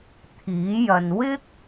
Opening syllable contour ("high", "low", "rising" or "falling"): rising